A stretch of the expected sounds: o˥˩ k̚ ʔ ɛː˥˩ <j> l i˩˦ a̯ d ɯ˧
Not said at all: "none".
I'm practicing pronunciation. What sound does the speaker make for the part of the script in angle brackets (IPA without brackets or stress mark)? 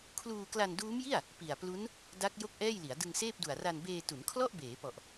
j